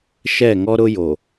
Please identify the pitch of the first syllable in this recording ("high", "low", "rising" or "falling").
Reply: falling